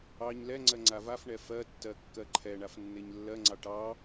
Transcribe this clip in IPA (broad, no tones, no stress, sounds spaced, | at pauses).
ɑ ɲ l ɛ ŋ͡ǀ ɜ ŋ͡ǀ a v a f ɳ ɛ f ɜ tː ɜ kː ɜ ǃʰ ɛ ɳ a f nː e ɲ lː ɜ ŋ͡ǀ ɑ ʈ ɑ